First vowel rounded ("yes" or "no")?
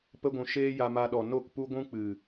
no